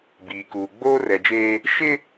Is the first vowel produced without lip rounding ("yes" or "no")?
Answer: yes